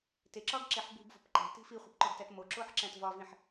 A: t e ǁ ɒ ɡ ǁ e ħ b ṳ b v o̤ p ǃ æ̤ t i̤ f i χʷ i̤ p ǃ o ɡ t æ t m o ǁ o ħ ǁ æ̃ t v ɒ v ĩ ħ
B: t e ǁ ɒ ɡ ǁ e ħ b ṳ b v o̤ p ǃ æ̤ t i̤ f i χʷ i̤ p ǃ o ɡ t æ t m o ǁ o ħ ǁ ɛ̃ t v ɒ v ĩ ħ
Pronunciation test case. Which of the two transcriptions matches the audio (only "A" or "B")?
A